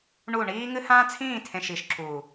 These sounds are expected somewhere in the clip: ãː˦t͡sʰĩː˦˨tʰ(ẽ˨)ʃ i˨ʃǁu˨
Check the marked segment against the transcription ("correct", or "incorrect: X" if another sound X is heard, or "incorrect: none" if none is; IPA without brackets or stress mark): correct